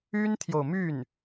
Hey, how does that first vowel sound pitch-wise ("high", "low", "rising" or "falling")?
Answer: high